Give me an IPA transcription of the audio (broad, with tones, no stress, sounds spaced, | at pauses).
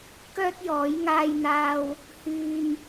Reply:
k œː˥ t̚ j ɔː˨˥ j ŋ aː˧ j n̪ aː˧ w | h yː˧ m